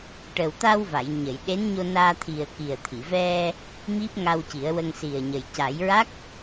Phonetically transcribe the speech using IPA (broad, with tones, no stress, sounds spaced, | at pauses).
ʈ ə˨˩ w t̪ a˧ w v a˨˩˨ j ɲ ə˨˩˨ j ɗ e˧˥ n ɲ o˧ n aː˧ t̪ʰ i˨˩ ə̯ k i˨˩ ə̯ t̪ʰ i˨˩˨ v ɛ˧ | m i˦˥ p̚ ŋ a˧ w c i˨˩˦ ə̯ w ə˧ ŋ s i˨˩ ə̯ ɲ ə˨˩ j c a˨˩˦ j ɹ a˦˥ k̚